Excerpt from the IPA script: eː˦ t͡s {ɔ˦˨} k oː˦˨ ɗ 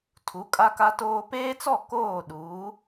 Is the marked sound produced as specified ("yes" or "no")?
yes